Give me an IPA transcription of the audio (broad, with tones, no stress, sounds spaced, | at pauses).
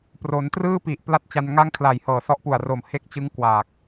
p r o˩˦ n t r ɯː˥˩ p i˨˩ ʔ p l a˥˩ t̚ t͡ɕ a˧ n ŋ a˥˩ ŋ kʰ l a˨˩ j h ɤː˨˩ s ɔ˦˥ ʔ p u˨˩ a̯ r o˨˩ m h e˦˥ k̚ t͡ɕ ɯ˦˥ ŋ k w aː˨˩ k̚